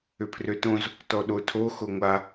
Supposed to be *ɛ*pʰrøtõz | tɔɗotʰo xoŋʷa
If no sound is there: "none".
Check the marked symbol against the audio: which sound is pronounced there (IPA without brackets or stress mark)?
ʏ